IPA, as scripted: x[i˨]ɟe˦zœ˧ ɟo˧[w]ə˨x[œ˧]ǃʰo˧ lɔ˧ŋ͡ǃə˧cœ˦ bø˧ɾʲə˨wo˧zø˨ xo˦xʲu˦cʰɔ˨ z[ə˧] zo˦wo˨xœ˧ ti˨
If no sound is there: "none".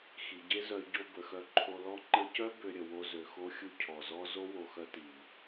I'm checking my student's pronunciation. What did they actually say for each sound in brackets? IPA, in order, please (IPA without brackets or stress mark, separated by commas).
i˨, b, œ˧, ɔ˧